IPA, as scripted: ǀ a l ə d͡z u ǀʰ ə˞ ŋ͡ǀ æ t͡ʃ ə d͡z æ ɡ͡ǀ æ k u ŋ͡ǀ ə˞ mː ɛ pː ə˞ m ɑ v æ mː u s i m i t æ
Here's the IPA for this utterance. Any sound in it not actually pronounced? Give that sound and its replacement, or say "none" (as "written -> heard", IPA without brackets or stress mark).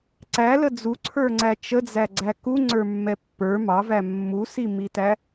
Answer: a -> æ